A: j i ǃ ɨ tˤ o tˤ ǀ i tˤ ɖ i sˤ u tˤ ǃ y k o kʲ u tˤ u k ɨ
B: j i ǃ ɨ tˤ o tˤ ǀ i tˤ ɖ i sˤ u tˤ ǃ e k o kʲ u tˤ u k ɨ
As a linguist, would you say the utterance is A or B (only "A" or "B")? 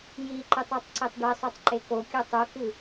B